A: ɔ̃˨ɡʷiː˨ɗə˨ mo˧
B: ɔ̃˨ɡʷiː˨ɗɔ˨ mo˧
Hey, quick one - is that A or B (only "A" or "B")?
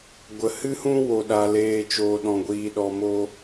B